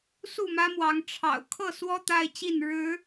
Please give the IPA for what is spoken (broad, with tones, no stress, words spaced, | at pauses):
su˥˨mä˦mwɑ˨˦ŋ ʈ͡ʂʰɑ̰˨˩ʊ̯ kʰɤ˥˨swɔ˦ t̪a˦ɪ̯t͡ɕi˥˨n ɻɻ̩˨˦